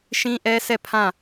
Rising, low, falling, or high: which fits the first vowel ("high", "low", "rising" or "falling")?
high